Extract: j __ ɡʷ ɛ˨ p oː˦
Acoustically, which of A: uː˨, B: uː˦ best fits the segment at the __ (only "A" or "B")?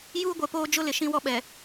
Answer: B